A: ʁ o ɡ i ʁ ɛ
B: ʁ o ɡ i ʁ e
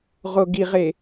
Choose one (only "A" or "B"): B